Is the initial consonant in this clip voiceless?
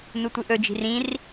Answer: no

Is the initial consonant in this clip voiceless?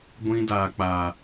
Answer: no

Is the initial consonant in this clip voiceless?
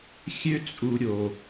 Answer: yes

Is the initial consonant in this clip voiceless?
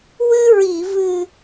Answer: no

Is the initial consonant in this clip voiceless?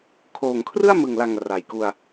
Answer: yes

